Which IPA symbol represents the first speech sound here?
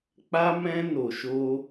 k͡p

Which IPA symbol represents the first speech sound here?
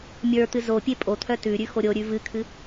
mʲ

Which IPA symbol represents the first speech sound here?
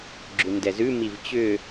ɡ͡ǁ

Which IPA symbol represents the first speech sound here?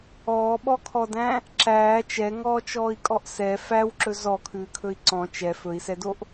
ɔː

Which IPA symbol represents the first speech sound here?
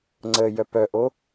ŋ͡ǀ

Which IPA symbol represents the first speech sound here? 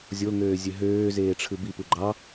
zʲ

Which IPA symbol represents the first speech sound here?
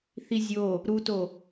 θ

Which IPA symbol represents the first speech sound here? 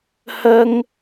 h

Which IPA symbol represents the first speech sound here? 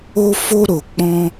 o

